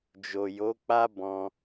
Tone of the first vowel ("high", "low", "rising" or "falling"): low